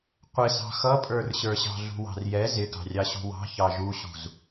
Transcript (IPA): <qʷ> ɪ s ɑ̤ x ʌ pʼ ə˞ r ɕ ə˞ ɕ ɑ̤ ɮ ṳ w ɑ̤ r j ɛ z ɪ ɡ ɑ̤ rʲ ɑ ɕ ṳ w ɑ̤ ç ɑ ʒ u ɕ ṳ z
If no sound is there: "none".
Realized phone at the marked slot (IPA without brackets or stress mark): qʷ